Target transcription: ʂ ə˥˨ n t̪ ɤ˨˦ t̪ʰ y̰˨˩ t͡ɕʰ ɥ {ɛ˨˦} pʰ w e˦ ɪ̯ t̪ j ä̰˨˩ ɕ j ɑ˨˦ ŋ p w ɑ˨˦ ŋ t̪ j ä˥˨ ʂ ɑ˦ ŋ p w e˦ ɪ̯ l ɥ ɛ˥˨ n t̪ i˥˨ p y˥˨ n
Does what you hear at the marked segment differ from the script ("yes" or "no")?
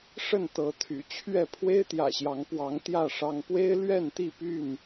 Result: yes